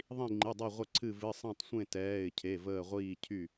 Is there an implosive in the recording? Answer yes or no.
no